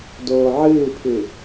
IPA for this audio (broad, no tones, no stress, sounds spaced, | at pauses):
d oː ʕ ɨː pʰ ɨ